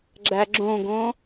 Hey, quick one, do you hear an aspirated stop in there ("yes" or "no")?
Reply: no